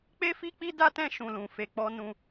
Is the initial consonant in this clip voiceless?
yes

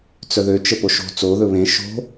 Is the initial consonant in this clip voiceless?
yes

